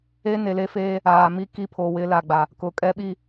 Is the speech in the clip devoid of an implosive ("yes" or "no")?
no